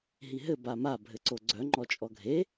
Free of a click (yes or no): no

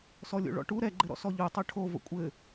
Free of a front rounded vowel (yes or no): yes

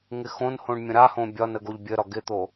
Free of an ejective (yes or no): yes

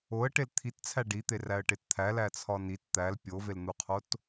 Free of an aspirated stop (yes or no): no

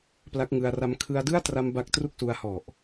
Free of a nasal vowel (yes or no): yes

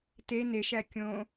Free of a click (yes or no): yes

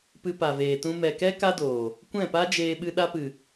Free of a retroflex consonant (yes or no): yes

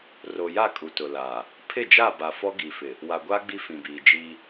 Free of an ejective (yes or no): no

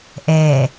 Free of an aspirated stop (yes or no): yes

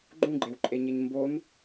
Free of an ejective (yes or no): no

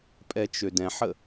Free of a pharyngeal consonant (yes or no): no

